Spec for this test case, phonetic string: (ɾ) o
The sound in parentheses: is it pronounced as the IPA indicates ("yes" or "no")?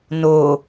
no